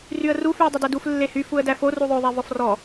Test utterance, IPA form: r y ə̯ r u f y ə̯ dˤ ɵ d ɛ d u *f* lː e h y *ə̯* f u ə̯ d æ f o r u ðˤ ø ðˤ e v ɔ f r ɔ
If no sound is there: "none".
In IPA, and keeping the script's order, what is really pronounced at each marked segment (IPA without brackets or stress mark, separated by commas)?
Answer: f, none